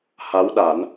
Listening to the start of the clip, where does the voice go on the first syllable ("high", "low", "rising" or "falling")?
rising